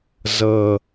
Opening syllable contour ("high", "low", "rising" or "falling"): low